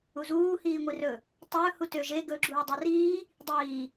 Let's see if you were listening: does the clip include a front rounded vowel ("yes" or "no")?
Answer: yes